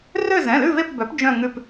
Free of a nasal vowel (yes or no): no